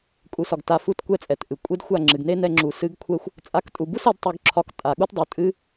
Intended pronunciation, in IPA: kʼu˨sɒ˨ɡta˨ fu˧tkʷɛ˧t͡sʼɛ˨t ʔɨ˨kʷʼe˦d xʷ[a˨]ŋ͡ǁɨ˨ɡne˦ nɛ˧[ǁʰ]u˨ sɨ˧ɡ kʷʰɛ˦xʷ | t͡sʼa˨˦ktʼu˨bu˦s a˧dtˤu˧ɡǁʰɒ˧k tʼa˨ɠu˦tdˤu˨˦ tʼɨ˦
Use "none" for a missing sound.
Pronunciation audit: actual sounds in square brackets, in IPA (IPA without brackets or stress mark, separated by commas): a˦˨, ŋ͡ǁ